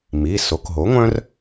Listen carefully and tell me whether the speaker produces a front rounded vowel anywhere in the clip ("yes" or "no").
yes